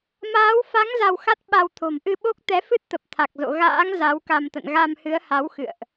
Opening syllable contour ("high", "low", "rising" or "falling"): rising